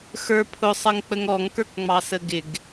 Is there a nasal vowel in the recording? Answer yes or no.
no